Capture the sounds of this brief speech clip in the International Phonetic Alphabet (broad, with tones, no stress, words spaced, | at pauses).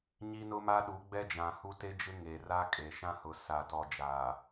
ɲi˦nʊ˦ma˦ ɗu˨˦ɡ͡bɛ˦d͡ʒã˨hu˦ te˦d͡ʒɪ˦ ŋe˨ra˦kʼe˨ ʃã˦hʊ˨ sa˨ tɔ˨d͡ʒaː˨